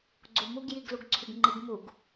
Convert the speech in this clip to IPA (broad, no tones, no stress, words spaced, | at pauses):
ɡ͡ǀumuɡ jiɡluɡǀʰyɡŋ͡ǃiɡ muɡ